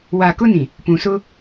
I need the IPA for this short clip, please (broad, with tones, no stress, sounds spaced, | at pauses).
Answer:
w a˨ k ʊ˦ n ĩ˨ | p ũ˨ s ʊ˦